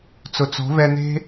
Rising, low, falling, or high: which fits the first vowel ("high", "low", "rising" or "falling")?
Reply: low